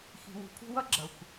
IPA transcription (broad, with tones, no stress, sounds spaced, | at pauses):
x i̤˨ w ṳ˨ pʰ ṳ˦ w ʌ˥ ɡ͡ǁ ʌ˩ xʷ